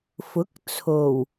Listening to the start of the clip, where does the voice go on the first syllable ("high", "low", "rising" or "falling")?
rising